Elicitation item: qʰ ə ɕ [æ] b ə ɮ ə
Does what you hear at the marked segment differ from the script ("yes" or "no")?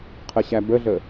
no